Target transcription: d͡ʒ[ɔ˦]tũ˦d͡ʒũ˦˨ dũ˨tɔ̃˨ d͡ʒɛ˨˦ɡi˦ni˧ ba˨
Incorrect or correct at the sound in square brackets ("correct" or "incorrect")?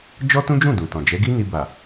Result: correct